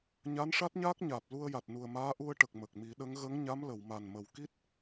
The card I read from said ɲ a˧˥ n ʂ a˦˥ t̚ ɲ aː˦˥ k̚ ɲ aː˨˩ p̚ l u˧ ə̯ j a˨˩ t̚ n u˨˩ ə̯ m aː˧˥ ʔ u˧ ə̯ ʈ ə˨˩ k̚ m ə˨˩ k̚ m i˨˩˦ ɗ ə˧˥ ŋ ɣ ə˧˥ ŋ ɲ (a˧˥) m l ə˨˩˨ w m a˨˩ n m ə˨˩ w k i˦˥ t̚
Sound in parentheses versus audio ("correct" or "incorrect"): correct